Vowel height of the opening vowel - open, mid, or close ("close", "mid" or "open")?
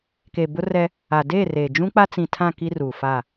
mid